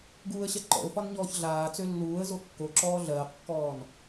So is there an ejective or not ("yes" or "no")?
no